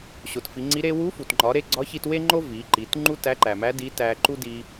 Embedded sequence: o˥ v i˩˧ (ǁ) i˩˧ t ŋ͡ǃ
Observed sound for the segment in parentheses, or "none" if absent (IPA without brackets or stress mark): ǃ